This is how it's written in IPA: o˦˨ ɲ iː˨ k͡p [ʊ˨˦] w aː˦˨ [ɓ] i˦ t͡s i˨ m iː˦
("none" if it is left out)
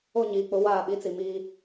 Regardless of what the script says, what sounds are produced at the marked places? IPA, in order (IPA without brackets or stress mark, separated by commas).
ʊ˨˦, ɓ